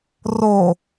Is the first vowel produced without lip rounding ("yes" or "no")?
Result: no